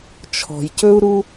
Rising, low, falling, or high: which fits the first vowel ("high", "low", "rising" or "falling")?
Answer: low